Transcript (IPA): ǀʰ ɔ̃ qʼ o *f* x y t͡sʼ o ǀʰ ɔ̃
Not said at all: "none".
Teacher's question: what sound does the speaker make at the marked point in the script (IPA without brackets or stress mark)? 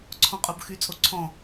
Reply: b